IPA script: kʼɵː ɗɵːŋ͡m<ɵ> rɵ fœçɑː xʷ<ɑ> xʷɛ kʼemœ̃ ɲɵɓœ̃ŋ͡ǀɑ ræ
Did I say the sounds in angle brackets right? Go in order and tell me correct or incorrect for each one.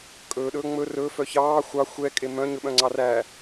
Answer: correct, correct

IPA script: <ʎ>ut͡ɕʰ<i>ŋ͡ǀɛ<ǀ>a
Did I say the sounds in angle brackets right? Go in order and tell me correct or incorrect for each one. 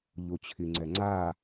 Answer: correct, correct, incorrect: ŋ͡ǀ

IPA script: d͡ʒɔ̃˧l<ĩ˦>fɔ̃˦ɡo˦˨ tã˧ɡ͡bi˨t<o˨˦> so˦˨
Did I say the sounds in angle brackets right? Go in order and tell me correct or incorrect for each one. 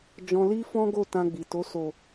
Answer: incorrect: i˦, correct

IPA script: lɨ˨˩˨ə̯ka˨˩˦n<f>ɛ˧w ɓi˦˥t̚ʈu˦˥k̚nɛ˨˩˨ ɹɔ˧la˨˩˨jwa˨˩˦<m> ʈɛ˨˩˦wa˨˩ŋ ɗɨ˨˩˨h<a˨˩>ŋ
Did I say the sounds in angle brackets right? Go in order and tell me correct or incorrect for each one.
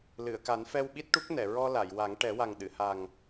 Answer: correct, incorrect: ŋ, correct

